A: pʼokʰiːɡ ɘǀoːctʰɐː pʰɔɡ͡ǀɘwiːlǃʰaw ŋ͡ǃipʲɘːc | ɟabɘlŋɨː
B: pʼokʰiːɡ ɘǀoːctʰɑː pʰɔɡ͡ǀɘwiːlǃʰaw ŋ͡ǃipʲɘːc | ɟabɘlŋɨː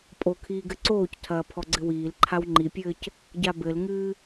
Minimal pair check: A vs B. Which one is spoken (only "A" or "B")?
A